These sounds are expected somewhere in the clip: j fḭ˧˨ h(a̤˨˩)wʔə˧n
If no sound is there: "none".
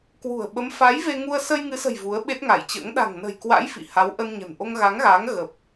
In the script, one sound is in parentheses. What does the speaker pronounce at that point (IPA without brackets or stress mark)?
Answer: a˨˦